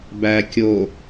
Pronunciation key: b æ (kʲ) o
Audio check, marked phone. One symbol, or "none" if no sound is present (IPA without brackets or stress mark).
kʲ